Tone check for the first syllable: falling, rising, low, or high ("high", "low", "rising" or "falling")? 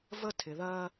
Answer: high